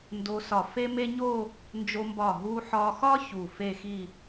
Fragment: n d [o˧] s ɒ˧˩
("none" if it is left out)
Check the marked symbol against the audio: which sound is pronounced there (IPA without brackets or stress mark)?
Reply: o˧